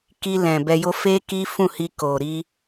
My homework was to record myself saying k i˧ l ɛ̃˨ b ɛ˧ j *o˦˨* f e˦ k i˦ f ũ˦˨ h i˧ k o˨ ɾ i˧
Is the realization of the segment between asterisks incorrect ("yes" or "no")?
yes